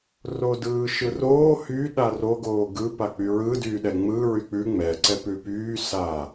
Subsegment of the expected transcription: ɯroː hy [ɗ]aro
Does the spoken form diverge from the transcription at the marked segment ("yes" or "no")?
no